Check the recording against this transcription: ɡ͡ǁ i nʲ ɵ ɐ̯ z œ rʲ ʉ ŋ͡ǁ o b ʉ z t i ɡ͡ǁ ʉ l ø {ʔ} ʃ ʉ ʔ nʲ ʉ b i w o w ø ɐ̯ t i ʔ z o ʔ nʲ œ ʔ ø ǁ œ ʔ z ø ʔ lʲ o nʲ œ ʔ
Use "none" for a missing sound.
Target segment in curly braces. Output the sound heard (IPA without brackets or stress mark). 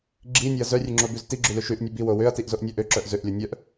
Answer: none